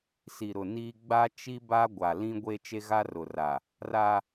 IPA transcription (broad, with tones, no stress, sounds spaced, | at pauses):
s i˨ ɾ ʊ˨ n iː˦ ɡ͡b a˦ t͡ʃ i˦ b a˦ ɡʷ a˨ l ĩ˦ ɡʷ e˦ t͡ʃ e˦ ɣ a˦ r ʊ˨ r a˨ | r a˦